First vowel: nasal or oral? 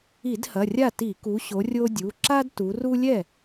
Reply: oral